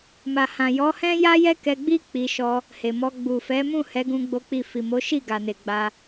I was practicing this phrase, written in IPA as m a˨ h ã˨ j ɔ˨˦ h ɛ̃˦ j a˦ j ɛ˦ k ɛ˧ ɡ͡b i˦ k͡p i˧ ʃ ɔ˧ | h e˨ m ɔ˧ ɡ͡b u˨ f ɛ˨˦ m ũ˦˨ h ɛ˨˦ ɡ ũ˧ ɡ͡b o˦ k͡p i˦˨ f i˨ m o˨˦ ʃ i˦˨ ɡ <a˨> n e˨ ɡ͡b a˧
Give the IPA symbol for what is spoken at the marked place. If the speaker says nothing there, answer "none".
a˨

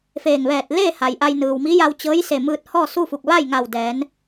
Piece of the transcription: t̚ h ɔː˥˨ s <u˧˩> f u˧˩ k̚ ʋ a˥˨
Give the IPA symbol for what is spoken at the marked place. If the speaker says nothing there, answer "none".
u˥˨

